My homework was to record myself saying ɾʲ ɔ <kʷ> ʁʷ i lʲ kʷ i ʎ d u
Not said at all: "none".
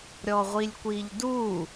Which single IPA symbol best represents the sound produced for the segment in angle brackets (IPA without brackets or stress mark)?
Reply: none